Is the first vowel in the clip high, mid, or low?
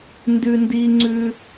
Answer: high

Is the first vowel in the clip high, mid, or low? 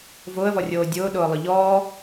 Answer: high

